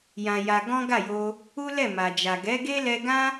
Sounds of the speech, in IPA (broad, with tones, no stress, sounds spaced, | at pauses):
j ã˧ j a˧ ɡ ɔ̃˦ ɡ a˦˨ j o˧ | u˦ l ɛ˦˨ m a˨ d͡ʒ a˨ ɡ ɛ˨˦ ɡ e˦ l ɛ˧ ɡ ã˦